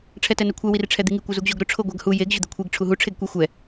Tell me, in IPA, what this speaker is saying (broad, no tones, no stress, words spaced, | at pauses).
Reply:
ʈ͡ʂʰɛtɛnekʷʰɛ wirʈ͡ʂʰɛd̪iŋi kʷɛzuɡʑoɡɾʊ ʈ͡ʂʰoɡʷaɡhu jeɡ ʑʊd̪ekʷʰiɡ ʈ͡ʂʰuɦu ʈ͡ʂʰeɡkʷi xʷɛ